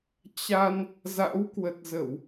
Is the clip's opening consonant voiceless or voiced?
voiceless